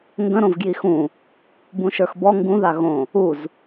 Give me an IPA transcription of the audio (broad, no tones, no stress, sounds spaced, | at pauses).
ŋ ɡ ə̃ ɾ õ v ɡ j i x ũ | b ũ ʃ ə˞ x b ɔ ŋ ɡ ũ ð a ɣ õ | u z